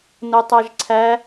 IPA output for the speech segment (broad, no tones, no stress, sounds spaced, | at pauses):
n o tˤ æ ʒ ǀʰ æ